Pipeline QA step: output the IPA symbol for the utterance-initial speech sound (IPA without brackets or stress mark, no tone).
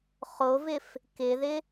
χ